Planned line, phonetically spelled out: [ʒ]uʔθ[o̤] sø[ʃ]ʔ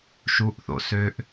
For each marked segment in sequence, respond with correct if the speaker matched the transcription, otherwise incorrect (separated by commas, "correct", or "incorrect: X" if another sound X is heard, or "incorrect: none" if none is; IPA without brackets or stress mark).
incorrect: ʃ, incorrect: o̰, incorrect: none